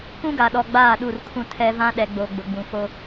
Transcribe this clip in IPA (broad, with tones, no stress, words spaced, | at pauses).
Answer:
kũ˦ɡa˨ɗɔ˨ ɡ͡baː˦˨ɗu˦˨rkʰũ˦tʰɛ˦ vã˦ɗɛ˨ɡ͡bo˨ ɡ͡bʊ˨ɡ͡bũ˨fo˦